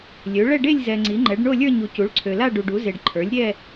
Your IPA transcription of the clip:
lʲ ø˩˥ ɭ ɛ˥˧ ɖ e˥˧ lʲ z ɛ˨ ŋ͡ǀ i˩˥ ŋ͡ǃ ɛ˩˥ ɖ ɳ o˥˧ lʲ ə˞˥˧ ɲ u˨ c u˩˥ ɭ ǀʰ ø˨ l a˥˧ ɖ u˨ ɖ u˩˥ z e˨ ɖ ǃʰ ə˞˩˥ lʲ ɾʲ ɛ˥˧

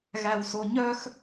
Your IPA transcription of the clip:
ɣ æ w s o ɲ œ x

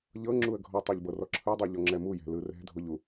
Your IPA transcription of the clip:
ʎ ɤ ŋ͡ǁ u ə̯ ɡʱ ɔ tˤ o ʎ b ɤ r ɔ ǁʰ ɯ dˤ o ʎ ɔ ŋ͡ǁ ɛ m u j ɛ̤ l ɯ r ɛ̤ dʱ o ʎ u

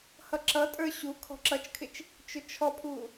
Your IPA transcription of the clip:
h ʌ ǁ ʌ tʼ ə˞ ɕ u kʰ ɔ̤ ǁ ʌ t͡ʃ kʰ ɪ t͡ʃ | t͡ʃ ʊ t͡ʃʰ ɔ pʰ u

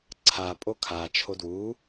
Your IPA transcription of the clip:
ǀʰ a pʼ o kʰ a t͡ʃʰ o d w u

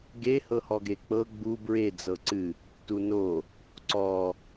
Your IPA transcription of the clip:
ɡ e h ɤ h ɔ ɡ e k͡p ɤ ɡ͡b u b ɹ e d͡z ɤ ǀ ɨ | t u n o | ǀ ɔ

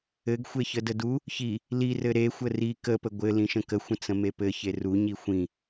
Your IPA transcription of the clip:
ɘ ɡ xʷ e ç ə d ə d u | ç i | l i r ɘ ɾ e xʷ ə r i k ə p ə ɡʷ ɘ l ĩ ʃ ə̃ k ə xʷ ə̃ t͡s ə̃ m e p ɘ ç e r u ɲ i xʷ ĩ

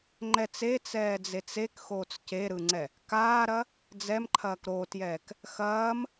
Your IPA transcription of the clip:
ŋ͡ǃ ɛ t͡s e t͡s ɛː d͡z e t͡s e k x oː t͡s c e ɾ ɯ ŋ͡ǀ ɛ | k aː ɾ ɐ | d͡z ɛ m ǃʰ ɐː k ɾ o t j ɛː k | x ɐː m

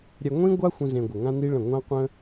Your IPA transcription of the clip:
ɾʲ ɛ˧ ŋʷ ĩ˦ ɡʷ a˦ xʷ ə̃˦ z ẽ˧ ɡʷ ə˨ ŋ ã˦ n i˦ ɭ ə̃˦˨ ŋʷ ã˦ qʷ ə̃˦

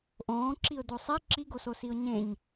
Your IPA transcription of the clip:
ʔ õː ǁ i ʊ̯ d o sˤ i ǁ i ɡ o s o s i ʊ̯ ɲ ẽ ɲ

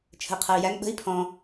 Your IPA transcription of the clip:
t͡ʃʰ ə̤ i̯ qʰ ɐ i̯ j æ ŋ ɓ ə̤ i̯ pʰ ɔ̃

